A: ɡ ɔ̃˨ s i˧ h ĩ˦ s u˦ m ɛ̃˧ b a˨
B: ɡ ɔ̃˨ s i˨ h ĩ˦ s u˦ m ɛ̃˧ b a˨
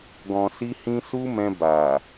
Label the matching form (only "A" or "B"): A